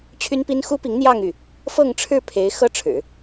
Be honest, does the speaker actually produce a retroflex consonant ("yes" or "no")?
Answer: yes